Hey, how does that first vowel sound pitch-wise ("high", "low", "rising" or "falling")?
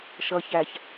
low